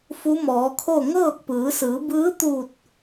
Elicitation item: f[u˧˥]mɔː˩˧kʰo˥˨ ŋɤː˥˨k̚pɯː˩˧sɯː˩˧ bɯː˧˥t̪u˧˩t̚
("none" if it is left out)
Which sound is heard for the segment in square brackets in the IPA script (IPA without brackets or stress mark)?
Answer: u˧˥